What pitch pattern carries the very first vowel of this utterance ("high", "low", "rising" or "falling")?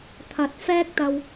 rising